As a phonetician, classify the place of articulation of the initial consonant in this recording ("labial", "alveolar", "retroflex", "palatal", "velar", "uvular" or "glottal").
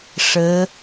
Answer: retroflex